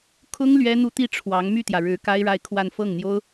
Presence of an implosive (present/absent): absent